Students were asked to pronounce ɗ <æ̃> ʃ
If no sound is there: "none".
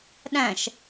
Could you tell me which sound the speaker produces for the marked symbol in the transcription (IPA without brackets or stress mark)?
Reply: æ̃